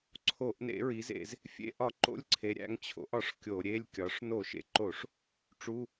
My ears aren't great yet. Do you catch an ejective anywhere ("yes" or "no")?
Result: no